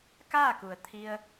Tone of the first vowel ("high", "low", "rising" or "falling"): falling